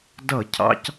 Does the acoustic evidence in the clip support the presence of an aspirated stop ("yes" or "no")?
yes